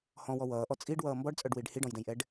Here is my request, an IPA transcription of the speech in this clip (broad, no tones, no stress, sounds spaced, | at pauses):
h ɔ̃ w ɔ w ʌː ʔ ɔ t͡sʼ i ɖ w ʌː m b ɔ ɖ t͡sʼ œ ɖ w i ɖ h i ɖ ɔ̃ j d ɛ̃ j ʔ ɛ ɖ